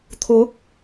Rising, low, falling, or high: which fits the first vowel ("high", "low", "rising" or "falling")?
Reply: rising